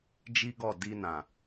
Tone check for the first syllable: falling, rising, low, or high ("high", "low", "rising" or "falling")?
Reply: high